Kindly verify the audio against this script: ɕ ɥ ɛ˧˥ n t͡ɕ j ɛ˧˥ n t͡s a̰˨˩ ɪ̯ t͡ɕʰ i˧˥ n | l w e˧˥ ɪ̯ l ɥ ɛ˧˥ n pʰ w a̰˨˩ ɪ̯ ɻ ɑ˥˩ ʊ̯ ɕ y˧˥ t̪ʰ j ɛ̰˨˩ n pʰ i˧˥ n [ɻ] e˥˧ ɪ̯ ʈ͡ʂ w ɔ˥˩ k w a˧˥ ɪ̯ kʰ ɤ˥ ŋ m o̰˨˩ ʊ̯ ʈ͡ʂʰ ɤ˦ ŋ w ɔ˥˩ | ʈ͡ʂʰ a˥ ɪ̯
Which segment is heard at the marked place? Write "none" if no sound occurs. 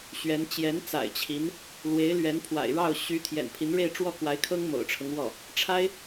ɻ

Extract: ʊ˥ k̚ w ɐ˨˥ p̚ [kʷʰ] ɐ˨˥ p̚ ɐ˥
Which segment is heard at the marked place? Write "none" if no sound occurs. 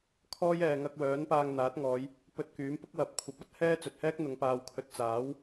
kʷʰ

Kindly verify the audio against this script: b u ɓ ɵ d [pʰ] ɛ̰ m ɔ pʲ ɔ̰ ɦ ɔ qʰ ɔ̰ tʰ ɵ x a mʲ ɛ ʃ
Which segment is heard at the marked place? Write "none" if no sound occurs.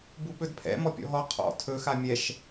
pʰ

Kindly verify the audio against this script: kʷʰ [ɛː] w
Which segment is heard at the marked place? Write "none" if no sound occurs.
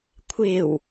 ɪː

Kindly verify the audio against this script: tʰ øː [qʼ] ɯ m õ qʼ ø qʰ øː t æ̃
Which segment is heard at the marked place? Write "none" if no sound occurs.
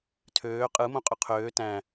qʼ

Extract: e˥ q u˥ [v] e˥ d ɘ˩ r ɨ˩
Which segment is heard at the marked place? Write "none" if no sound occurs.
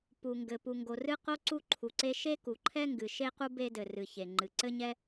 b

